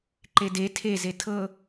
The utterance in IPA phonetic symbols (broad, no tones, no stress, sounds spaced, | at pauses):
ǃ e d e tʰ e z e tʰ ɤ